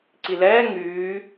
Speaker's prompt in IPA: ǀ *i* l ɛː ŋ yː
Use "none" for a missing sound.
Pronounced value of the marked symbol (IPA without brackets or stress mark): i